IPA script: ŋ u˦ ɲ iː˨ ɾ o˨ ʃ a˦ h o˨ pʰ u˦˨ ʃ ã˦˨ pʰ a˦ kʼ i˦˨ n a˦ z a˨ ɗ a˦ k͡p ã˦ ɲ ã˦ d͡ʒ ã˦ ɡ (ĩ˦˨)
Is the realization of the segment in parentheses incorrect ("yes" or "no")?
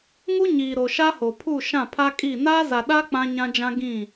no